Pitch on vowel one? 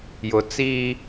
low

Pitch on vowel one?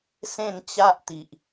falling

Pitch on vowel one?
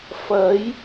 rising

